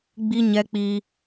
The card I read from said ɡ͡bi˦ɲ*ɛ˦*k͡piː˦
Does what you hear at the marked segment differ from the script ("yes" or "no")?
no